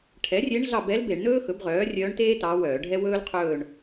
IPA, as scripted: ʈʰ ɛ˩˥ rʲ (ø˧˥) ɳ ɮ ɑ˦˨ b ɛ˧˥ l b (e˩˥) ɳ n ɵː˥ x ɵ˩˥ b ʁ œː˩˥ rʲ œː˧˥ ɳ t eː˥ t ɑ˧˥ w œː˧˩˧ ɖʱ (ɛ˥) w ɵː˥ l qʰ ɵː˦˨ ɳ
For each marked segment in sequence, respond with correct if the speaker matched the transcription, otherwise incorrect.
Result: incorrect, incorrect, correct

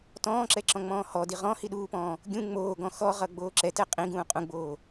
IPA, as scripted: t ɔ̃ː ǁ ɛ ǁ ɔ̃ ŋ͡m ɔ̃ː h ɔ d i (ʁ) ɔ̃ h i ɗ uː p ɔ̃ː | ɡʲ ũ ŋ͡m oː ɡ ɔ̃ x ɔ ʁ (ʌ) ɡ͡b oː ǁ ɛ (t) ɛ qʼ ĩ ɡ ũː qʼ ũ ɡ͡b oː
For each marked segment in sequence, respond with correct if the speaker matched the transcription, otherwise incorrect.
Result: correct, correct, correct

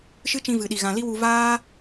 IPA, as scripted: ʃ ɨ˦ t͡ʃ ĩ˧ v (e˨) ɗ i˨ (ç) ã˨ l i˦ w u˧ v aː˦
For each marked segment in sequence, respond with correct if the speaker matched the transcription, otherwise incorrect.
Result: incorrect, incorrect

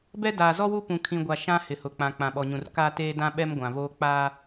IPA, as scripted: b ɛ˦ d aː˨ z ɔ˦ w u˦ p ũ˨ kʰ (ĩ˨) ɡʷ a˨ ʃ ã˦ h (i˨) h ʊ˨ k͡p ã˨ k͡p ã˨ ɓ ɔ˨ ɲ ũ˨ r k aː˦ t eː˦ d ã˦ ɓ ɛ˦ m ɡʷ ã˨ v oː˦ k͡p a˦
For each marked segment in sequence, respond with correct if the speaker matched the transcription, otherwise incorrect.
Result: correct, incorrect

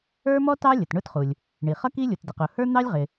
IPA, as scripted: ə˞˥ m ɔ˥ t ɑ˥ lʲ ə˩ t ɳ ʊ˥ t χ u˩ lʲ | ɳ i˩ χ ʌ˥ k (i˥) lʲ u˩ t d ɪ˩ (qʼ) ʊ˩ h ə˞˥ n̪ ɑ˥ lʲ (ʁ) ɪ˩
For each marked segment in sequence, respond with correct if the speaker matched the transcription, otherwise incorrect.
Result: correct, incorrect, correct

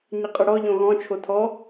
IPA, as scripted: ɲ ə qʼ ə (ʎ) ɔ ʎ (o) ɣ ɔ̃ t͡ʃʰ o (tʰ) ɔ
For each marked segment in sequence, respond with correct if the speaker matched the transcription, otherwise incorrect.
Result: incorrect, incorrect, correct

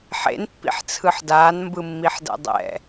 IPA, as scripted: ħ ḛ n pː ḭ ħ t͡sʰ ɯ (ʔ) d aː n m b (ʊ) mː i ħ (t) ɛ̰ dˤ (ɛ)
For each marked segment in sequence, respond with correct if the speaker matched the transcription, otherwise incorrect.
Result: incorrect, incorrect, incorrect, incorrect

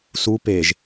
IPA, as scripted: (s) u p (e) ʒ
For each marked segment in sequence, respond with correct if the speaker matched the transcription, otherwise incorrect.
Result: correct, correct

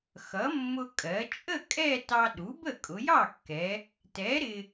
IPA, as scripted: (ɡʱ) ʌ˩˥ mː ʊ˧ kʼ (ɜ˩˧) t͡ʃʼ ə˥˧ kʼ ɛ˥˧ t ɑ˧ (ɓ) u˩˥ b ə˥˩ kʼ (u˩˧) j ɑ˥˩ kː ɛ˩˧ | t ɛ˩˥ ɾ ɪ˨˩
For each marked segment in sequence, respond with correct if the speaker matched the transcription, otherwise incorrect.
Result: incorrect, correct, incorrect, incorrect

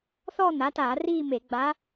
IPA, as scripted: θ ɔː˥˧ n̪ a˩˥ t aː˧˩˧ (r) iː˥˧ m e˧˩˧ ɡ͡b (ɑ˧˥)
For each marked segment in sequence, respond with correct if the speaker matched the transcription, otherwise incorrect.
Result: correct, incorrect

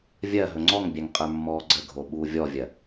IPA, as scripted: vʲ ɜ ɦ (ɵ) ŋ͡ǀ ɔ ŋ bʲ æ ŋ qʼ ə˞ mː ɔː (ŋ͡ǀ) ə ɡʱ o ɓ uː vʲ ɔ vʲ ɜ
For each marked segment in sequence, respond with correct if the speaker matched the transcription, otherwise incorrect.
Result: correct, incorrect

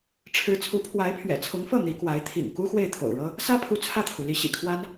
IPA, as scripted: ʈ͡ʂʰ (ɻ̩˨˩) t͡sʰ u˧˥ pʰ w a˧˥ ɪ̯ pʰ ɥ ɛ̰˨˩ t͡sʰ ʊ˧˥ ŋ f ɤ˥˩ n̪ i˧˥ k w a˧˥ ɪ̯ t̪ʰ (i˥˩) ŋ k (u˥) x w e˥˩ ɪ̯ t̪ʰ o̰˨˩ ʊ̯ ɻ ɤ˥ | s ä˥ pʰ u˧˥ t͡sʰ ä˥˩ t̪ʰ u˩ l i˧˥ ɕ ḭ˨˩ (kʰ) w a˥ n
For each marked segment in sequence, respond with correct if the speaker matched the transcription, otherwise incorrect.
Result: incorrect, incorrect, correct, correct

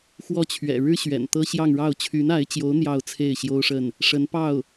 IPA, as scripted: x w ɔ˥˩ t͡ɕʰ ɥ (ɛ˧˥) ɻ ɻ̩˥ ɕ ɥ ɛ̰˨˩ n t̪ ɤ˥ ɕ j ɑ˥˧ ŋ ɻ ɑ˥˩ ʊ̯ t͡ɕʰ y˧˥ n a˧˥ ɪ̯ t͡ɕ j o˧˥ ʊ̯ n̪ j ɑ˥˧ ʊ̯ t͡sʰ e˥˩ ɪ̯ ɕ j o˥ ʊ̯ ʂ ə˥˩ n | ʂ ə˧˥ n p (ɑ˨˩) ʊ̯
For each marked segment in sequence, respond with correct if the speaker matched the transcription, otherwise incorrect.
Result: incorrect, incorrect

